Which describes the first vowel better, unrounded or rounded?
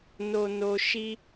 rounded